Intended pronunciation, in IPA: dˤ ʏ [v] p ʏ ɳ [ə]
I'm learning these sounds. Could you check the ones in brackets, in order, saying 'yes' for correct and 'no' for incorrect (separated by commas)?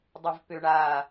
yes, no